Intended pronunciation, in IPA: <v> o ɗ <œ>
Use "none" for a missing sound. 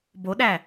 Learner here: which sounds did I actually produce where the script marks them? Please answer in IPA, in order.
b, æ

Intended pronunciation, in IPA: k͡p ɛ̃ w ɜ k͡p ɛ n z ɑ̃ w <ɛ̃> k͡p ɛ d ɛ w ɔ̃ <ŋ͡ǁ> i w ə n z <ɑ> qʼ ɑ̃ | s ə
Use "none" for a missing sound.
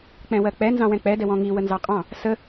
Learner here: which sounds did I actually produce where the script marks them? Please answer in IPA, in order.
ɛ̃, ŋ, ɑ

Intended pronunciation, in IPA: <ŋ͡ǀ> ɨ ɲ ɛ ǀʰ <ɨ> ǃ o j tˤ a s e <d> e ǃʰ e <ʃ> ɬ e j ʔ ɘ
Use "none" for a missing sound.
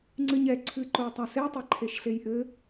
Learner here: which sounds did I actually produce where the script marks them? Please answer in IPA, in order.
ŋ͡ǀ, ɨ, tˤ, ʃ

